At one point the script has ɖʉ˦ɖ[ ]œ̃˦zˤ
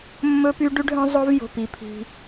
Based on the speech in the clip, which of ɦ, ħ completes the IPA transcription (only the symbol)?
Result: ɦ